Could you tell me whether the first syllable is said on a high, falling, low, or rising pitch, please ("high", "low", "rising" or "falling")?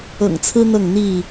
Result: low